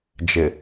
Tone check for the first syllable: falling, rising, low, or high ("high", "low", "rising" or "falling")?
low